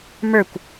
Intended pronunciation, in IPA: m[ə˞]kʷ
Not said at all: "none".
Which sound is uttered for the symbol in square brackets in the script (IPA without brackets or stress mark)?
ə˞